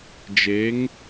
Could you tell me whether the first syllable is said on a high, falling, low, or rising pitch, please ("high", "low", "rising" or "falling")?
rising